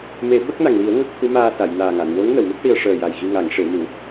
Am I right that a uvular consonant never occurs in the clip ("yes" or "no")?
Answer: yes